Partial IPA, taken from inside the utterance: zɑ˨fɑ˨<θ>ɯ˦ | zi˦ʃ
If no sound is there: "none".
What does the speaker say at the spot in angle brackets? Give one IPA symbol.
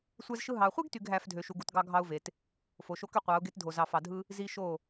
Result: dʱ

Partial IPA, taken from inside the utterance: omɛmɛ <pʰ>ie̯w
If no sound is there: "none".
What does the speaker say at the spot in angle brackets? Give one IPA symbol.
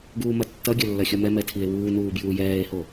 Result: tʰ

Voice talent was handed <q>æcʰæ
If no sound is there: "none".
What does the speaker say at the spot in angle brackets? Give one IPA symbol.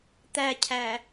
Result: t̪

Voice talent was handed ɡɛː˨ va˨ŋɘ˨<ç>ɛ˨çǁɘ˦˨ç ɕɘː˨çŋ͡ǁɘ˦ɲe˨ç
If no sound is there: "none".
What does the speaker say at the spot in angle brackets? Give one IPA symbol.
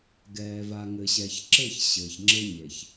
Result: ɕ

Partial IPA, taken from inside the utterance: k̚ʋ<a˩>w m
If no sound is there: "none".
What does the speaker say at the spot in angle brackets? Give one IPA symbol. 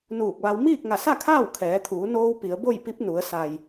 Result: a˧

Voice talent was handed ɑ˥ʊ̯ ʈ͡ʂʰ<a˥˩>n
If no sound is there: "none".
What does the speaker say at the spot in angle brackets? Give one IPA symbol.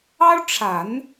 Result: a˨˩˦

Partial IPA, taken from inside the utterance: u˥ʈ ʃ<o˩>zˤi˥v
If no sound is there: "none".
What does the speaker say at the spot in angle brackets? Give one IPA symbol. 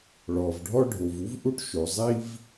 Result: o˩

